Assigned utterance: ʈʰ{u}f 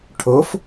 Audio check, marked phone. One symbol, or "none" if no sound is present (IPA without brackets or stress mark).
o